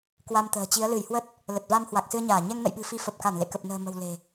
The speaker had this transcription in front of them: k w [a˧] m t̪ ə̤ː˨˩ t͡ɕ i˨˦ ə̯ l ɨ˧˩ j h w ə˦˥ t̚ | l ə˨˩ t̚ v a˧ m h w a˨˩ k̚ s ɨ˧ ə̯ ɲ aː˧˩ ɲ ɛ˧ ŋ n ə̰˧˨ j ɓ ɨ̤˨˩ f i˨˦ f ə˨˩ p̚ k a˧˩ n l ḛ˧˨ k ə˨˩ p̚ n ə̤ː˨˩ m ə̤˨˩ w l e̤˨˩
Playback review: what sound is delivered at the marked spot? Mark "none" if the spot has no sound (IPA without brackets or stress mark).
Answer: a˧